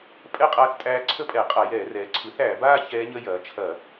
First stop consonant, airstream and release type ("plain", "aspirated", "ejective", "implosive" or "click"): ejective